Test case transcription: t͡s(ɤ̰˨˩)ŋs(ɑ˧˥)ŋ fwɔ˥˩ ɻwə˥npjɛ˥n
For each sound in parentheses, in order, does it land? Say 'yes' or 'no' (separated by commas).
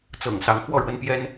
yes, yes